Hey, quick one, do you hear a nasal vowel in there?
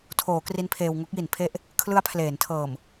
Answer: no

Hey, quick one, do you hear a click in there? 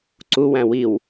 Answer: yes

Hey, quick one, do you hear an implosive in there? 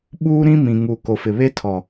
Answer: yes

